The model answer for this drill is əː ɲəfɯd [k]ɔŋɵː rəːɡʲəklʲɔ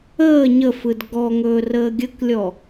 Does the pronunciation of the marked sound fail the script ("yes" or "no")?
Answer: yes